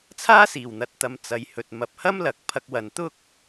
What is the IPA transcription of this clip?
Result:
t͡sʰ aː˥ s iː˨˩ w n̪ ɐ˨˥ t̚ t̪ ɐ˨ m t͡s ɐ˨ j h ɵ˨ t̚ m ɐ˨˥ p̚ h ɐ˥ m l ɐ˨ k̚ pʰ ɐ˧ k̚ w ɐ˨ n t̪ ʊ˥ k̚

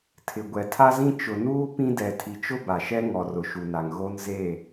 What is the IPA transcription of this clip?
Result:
tʰ ɪ˨ ɡʷ ɛ˨ tʰ a˦ z ĩ˦ t͡ʃ ʊ˨ n uː˦ p ĩ˦ d ɛ˨ tʰ i˨ t͡ʃ ʊ˦ b a˨ ʃ ɛ˦ ŋ ɔ˨ r ʊ˨ ʃ u˨ n a˨ ŋ ɣ o˦ n z e˦˨

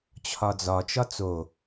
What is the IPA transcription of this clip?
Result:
t͡ɕʰ ɒ d͡z ɒ t͡ʃ ɒ t͡s o

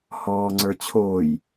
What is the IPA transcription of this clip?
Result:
h ɔː ŋ͡ǀ ə˞ t͡ɕʰ oː j

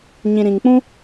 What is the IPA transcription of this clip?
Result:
ɲ ĩ˨ ɾ ĩ˨ ŋ k͡p ũ˦

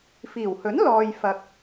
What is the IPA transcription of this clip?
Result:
f iː˨˩ w h ɵ˨˥ n l ɔː˨ j f ɐ˨ k̚

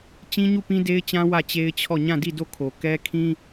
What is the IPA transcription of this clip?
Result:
t͡ɕ ĩ˦ ɲ u˦˨ p ĩ˦ d e˦ ɪ̯ t͡ɕ ã˦ w ä˦˨ t͡ɕ e˦ ɪ̯ t͡ɕʰ ɔ˦˨ ɲ ã˦˨ d i˦˨ d o˦˨ kʰ o˨ k ɛ˦ kʰ ĩ˦

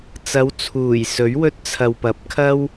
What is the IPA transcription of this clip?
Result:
t͡s ɐ˨˧ w t͡sʰ uː˨˩ j s ɵ˨˥ ɥ w ɵ˧ t̚ t͡sʰ ɐ˨ w p ɐ˨˥ p̚ kʰ ɐ˥ w

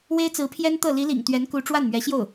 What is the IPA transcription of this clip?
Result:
w e˥ ɪ̯ t͡s ɹ̩˧˥ pʰ j ɛ˥ n t̪ ɤ˥˩ l i˧˥ l ḭ˨˩ ŋ t̪ ɥ ɛ˧˥ n k u˧˥ ʈ͡ʂ w a˥˩ n m ɥ ɛ˧˥ ɕ j o˥˩ ʊ̯

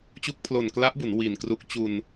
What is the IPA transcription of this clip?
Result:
t͡ɕ u˦˥ k̚ pʰ l o˨˩ n k l a˦˥ ʔ b u˩˦ n w i˨˩ n k r u˦˥ k̚ t͡ɕ u˧ n

